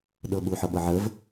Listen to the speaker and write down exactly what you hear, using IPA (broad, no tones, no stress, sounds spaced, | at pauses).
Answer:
ɗ ɤ ɓ u ħ ɤ ɓ ɤ ʕ ə v